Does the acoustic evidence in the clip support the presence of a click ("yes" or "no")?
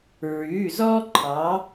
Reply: yes